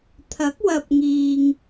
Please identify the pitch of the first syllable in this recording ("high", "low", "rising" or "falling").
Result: rising